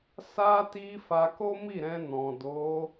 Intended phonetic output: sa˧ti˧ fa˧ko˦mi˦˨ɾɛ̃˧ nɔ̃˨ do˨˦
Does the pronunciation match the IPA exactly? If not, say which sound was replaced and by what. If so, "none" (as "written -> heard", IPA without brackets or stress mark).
none